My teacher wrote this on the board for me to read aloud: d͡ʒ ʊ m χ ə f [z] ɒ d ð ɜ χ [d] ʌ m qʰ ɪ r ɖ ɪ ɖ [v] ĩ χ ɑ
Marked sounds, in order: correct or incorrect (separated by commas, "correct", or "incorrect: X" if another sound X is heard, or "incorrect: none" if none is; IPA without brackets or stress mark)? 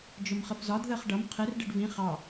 correct, incorrect: ɖ, correct